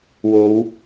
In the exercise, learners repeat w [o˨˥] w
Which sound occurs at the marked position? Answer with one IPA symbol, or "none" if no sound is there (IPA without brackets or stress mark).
o˨˧